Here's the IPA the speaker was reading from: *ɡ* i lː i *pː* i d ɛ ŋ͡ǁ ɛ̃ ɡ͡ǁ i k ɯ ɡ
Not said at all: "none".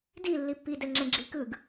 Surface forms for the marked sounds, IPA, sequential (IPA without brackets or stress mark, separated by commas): d, pː